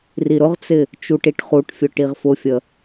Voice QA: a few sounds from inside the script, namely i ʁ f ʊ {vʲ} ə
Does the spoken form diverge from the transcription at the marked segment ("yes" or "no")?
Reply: yes